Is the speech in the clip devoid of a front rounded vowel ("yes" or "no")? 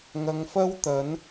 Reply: yes